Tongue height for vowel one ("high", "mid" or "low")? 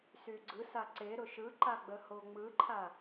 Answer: high